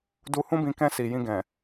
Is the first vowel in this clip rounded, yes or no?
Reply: yes